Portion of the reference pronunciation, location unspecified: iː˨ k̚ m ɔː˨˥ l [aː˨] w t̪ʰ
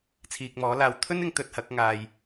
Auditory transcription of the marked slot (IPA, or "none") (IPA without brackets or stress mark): aː˧